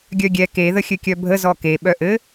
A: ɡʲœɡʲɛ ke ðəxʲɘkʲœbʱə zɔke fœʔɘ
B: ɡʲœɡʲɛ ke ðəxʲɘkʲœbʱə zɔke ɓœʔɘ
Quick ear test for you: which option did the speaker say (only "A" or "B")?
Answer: B